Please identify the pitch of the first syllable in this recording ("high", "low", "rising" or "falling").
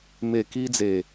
low